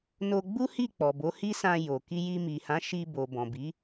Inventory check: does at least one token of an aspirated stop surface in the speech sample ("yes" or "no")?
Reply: no